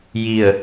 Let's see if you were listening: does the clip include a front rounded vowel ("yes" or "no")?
no